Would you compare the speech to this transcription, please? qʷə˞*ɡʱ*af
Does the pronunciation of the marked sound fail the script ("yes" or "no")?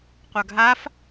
no